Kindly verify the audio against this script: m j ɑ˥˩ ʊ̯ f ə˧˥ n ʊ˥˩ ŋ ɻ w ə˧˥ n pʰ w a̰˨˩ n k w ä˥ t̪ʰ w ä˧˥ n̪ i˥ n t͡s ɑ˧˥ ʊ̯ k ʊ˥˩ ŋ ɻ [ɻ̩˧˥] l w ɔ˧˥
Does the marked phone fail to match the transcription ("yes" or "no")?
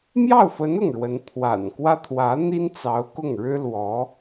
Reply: yes